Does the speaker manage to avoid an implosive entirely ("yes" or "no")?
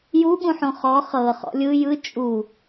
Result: no